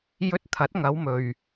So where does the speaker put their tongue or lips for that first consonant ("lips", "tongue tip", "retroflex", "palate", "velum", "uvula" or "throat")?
palate